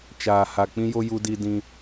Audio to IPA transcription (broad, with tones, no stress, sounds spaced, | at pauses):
t͡ʃ aː˨ h a˨ k͡p ĩ˦ j o˦ j u˦ d i˦ d ĩ˦